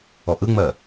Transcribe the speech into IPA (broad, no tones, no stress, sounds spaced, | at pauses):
ɔ ʔ ɯ ŋ͡m ɜ